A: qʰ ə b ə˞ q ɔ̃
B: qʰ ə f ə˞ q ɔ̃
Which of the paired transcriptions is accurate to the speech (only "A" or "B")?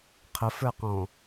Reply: B